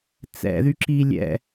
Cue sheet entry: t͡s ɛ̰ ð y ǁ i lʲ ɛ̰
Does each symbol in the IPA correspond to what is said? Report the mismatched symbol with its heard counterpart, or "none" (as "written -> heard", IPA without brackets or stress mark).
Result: none